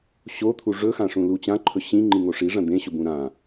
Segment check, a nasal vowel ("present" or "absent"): present